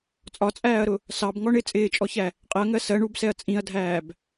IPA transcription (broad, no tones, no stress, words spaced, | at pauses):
t͡sʼɒt͡sʼæːɐ̯ɾʊ | sɑbŋɔ ɳɪ t͡sʼɪːt͡ʃʼɔçæ | qʼɪɐ̯ŋɜ sɜ ɳubsɛɐ̯ t͡sʼĩɐ̯dʱæːb